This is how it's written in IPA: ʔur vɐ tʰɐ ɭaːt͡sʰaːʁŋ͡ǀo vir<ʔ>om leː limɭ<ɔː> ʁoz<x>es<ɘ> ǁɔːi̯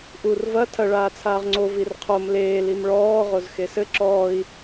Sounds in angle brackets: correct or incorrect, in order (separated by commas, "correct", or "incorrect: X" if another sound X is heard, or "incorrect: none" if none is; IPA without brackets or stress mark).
incorrect: qʰ, correct, correct, correct